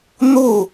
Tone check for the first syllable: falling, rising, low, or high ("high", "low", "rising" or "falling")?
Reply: falling